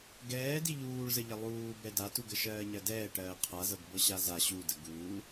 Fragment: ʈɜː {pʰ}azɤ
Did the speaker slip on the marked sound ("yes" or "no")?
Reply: yes